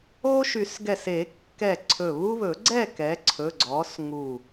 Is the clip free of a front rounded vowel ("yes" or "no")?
no